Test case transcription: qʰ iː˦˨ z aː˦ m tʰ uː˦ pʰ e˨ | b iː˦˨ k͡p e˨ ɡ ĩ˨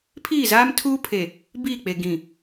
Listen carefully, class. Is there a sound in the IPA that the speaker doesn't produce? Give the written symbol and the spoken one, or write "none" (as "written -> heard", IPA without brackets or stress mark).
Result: qʰ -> pʰ